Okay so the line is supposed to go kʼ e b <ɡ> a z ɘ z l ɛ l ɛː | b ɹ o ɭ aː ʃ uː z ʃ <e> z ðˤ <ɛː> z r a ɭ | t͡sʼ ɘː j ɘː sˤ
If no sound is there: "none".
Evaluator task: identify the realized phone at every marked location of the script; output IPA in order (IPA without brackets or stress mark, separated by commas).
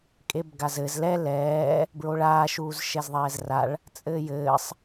ɡ, ɛ, ɛː